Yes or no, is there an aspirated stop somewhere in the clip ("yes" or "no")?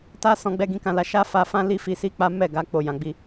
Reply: no